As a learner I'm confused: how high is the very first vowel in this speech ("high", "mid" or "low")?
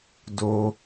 mid